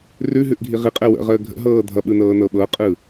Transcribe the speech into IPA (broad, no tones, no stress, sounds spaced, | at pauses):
r ʉ ɦ ʉ ʔ ɡʱ i ʁ i qʼ ɛ w ə̰ ʁ əː ɡʱ ə̰ ɦ ɤː dʱ ʌ ɓ ɯ n ɤː n ɤ ɓ ɤ qʼ ɯ